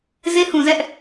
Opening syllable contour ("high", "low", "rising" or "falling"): high